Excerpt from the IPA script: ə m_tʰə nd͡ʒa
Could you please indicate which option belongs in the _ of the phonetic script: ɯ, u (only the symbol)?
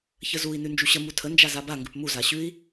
u